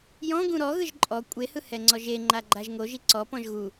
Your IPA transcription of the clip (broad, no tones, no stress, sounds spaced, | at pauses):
j ɔ̃ ɡ ũ ɾ ɔ ɣ ɯ ʒ ǃʼ ɔ kʷʼ e h ɯ h ɛ ŋ͡ǀ ɔ ʒ e ŋ͡ǃ a ɡ͡ǃ a ʒ ŋ o ʒ i ǀ ɔ p ɔ̃ ʒ ɣ u